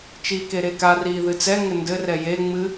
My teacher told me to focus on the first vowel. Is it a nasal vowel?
no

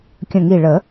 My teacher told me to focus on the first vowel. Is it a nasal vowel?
yes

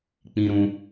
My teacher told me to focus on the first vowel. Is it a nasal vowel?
yes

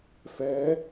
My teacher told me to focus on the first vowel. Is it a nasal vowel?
no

